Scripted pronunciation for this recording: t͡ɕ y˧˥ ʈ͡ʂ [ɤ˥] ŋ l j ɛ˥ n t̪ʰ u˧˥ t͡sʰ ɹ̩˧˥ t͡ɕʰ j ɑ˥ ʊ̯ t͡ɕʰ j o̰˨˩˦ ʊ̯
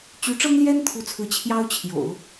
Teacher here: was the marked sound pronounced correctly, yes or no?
yes